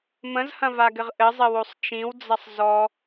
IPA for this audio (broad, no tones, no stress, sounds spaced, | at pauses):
m ə̃ z h ɐ̃ v a ɡ ɘ ʁ ʔ ɘ zˤ ɘ w o sˤ t͡ʃ ĩ w d͡z ɐ sˤ z ɔ